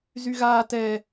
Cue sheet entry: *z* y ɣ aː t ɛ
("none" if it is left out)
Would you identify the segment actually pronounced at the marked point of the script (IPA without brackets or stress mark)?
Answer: z